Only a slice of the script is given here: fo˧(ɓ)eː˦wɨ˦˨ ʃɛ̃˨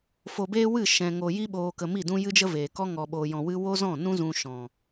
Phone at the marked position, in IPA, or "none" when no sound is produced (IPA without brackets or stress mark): b